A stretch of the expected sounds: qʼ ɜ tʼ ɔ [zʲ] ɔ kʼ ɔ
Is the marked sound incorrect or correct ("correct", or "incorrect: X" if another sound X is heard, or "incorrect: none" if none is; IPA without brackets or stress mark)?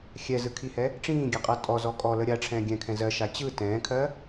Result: incorrect: z